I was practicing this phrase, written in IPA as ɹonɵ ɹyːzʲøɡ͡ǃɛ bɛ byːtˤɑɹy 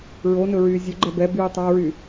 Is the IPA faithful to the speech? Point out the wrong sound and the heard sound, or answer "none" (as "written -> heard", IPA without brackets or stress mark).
none